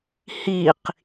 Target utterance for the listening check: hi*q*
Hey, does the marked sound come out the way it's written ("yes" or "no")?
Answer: yes